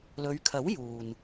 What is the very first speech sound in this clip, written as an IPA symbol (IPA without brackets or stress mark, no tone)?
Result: l